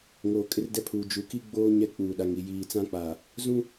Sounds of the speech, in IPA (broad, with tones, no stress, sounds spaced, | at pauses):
ŋ oː˨ kʼ ɪ˦ r d ɛ˦ pʰ uː˨ d͡ʒ u˨ k i˦ ɡ͡b oː˦ ɲ ɛ˦ k͡p uː˨ ɗ a˨ ŋ i˨ j iː˨ t͡s ã˦ k͡p a˨ | z ũ˦